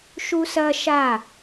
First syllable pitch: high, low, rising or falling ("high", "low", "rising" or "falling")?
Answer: high